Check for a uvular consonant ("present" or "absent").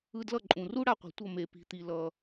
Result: present